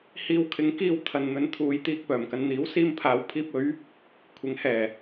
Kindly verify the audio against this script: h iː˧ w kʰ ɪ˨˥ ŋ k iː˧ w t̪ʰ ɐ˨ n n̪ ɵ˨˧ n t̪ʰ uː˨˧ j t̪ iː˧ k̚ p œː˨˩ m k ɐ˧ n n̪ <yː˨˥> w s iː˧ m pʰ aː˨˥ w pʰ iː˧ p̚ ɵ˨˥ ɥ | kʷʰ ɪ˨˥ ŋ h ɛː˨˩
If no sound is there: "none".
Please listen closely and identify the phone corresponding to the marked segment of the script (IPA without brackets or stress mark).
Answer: iː˨˥